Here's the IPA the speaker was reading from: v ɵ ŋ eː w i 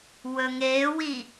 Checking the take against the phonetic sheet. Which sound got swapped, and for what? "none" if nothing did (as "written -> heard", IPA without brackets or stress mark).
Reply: v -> w